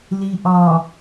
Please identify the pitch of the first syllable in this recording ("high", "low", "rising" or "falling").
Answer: low